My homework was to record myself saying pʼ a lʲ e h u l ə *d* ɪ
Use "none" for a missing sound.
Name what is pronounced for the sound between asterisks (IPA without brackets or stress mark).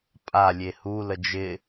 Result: d͡ʒ